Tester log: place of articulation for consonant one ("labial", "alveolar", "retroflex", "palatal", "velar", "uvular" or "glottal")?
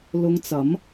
alveolar